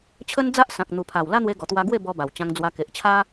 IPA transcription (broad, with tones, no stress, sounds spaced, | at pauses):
t͡ɕʰ ə˦ n d͡z a˦ ʔ s ã˨ k̚ n̪ u˨˩ pʰ a˨˩ w l a˦ n̪ w e˧ ɡ ɔ˨˩ t̪ w a˧ ɡ w e˥˧ b ɔ˧ b a˨˩ w t͡ɕ ã˧ ŋ d͡z w a˧ k e˨ ʔ t͡ɕʰ a˦